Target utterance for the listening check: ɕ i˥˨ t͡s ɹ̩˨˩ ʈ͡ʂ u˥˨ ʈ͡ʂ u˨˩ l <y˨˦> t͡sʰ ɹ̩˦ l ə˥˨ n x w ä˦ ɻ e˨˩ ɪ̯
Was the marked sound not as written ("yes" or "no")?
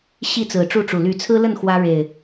no